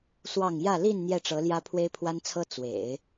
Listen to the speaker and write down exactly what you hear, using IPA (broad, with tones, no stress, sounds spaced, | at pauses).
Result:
s w ɑ˥˧ ŋ j ä˥˧ l i˥˧ n n̪ j ɛ˥˩ ʈ͡ʂ ɤ˧˥ l j ä˥ pʰ w e˥ ɪ̯ pʰ w a˥ n t͡sʰ ɤ˥ t͡s w ḛ˨˩˦ ɪ̯